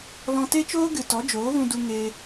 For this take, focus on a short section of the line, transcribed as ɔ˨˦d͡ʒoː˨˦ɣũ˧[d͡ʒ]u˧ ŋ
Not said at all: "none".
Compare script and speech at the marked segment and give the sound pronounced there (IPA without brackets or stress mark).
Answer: d